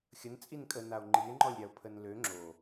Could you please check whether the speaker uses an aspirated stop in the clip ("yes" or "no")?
yes